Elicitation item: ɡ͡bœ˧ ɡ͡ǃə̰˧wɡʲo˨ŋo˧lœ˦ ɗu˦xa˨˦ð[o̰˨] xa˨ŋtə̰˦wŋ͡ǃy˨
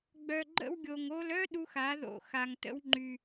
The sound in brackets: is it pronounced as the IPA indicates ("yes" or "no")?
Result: yes